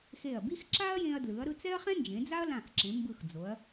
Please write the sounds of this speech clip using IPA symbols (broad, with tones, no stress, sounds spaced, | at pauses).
x e˧˩ ɐ̯ b i˥ x ǁ a˥ ɐ̯ j ẽ˧ ɐ̯ d l ɯ˩˧ ɐ̯ ɾ ɯ˧ t͡s ɛ˥ ɐ̯ χ ɛ̃˥ n d͡ʒ ẽ˩˧ d͡z a˥ ɐ̯ l ã˧˩ x ǁ ẽ˩˧ m b ɯ˧˩ x d͡z o˩˧ ɐ̯